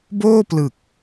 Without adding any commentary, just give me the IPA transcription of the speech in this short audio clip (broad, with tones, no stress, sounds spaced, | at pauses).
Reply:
b oː˥˩ p l ɯ˨˩ k̚